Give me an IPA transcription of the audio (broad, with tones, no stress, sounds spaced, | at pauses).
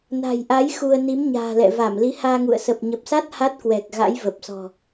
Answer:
n a̤˨˩ j ʔ a˨˦ j x u˧ ə̯ n i˨˦ m ɲ a̤ː˨˩ l ɛ̰˧˨ v a˧˩ m l i˨˦ h aː˧ ŋ ṵ˧˨ ə̯ s ə˨˩ p̚ ɲ ə˨˩ p̚ s a˦˥ t̚ h a˦˥ t̚ k w ɛ˨˩ k̚ ɣ a̰˧˥ j v ə˨˩ p̚ s ɔ̤˨˩